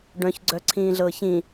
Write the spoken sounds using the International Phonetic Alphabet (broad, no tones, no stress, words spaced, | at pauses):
ɖœ̃çɡ͡ǀœǀʰĩːɮɤːç ĩ